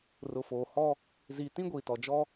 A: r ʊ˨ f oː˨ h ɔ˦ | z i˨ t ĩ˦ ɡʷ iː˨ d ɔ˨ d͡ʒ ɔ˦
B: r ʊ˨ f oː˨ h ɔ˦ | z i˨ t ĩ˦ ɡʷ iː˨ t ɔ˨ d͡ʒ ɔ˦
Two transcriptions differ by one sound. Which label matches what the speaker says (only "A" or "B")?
B